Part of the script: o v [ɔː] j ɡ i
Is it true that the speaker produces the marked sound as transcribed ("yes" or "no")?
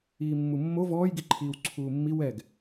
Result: yes